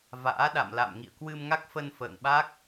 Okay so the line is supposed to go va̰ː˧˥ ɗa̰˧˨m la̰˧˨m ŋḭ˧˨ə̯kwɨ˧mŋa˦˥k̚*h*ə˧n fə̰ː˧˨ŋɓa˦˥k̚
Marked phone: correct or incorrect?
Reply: incorrect